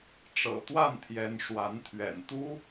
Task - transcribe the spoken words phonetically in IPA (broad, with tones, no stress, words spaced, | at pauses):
ʈ͡ʂɤ̰˨˩t̪wa˥˩nt̪ʰjɛ˧˥n ʂwa˧˥nt̪ʰɥɛ̰˨˩n t̪u˥